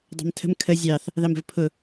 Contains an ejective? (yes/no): no